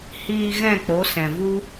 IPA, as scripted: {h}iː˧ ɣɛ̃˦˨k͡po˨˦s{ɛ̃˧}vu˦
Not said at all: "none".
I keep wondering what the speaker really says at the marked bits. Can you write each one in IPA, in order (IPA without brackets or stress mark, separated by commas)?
h, ɛ̃˨